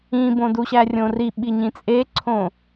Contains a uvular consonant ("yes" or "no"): no